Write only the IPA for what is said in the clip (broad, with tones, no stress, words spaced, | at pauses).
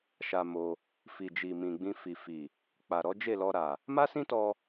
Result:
ʃa˧mo˧ | fi˨d͡ʒi˨ mĩ˨ɡ͡bĩ˧fi˨fi˨ | k͡pa˨ɾɔ˨˦d͡ʒe˦˨lɔ˧ ɾa˨ | ma˦sĩ˦tɔ˧